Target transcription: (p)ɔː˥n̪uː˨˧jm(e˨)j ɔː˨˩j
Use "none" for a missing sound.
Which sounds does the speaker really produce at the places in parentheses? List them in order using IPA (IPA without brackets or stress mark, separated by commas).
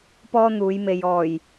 p, e˨